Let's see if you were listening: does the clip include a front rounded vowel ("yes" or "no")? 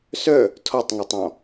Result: yes